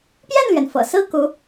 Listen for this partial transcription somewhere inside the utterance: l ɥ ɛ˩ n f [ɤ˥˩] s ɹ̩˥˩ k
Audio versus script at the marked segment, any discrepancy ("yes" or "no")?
yes